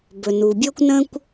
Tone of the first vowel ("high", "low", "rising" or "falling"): low